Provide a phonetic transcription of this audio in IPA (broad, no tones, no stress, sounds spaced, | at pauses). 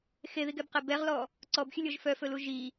x e ð i ɡ ɛ b q ɛ b ɛ ʁ l ɔ | ǀ ɔ b xʲ ɵ lʲ ɔ ʒ f œ f ɵ l u ʒ i